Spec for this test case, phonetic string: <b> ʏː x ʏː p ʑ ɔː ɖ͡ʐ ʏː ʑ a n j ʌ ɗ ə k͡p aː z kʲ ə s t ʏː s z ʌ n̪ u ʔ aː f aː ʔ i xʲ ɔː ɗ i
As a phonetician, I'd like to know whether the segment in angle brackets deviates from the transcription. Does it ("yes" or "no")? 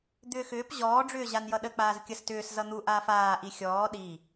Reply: yes